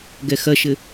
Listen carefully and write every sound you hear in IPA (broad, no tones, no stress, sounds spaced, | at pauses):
ɡ ɛ x ɐ ʃ ɘ